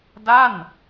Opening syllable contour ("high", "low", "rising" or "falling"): falling